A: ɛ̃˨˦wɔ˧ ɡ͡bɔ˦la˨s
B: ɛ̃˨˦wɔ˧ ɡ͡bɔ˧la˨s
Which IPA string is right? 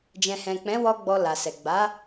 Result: B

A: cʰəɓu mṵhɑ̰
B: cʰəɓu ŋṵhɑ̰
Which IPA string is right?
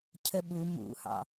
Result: A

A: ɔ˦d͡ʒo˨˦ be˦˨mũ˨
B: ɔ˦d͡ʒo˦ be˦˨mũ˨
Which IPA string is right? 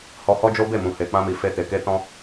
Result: B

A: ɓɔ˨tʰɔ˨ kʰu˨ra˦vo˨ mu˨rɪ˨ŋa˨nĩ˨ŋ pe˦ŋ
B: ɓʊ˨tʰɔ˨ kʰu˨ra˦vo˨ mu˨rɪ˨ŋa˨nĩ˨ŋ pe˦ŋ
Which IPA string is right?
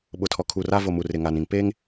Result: B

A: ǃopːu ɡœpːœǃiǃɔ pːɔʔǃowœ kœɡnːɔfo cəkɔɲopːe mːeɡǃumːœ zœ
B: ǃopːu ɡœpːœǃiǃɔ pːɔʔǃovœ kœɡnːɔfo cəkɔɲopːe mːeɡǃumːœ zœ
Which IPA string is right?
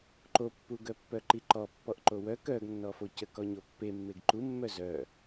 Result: A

